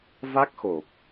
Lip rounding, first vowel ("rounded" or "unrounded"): unrounded